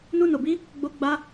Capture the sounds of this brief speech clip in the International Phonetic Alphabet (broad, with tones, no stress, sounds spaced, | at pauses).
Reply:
n u˦ n o˧ b i˦ | ɡ͡b o˦ ɡ͡b a˦